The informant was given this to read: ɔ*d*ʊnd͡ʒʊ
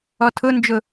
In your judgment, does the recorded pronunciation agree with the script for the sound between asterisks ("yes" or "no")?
no